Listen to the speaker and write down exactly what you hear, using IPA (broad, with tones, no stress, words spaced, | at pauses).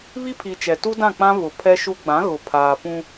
βi˦pʰi˨t͡ʃɛ˨tu˦ dã˦˨k͡pã˦ βʊ˨ pʰɛ˦ʃu˦ ɡ͡bã˨˦ɣʊ˨pʰaː˨ pũ˦